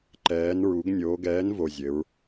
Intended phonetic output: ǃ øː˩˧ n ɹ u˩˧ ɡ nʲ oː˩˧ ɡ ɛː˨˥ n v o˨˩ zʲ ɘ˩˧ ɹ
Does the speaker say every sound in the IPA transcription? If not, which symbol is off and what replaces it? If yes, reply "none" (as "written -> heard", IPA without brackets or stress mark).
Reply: øː˩˧ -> ɛː˩˧